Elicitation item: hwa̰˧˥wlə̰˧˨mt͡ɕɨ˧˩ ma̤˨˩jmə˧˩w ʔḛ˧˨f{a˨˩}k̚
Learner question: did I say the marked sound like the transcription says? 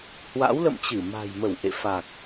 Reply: yes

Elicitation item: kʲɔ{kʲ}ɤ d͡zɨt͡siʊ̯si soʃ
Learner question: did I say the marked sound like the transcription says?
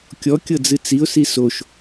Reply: yes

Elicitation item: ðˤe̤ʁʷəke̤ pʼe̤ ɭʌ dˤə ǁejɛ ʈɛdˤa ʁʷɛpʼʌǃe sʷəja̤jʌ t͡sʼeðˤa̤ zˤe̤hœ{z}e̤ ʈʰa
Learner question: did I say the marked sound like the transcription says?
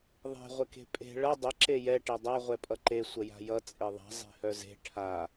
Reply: yes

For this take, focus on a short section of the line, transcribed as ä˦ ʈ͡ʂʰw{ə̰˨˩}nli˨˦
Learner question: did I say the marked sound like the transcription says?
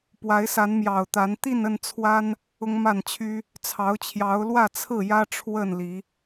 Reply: no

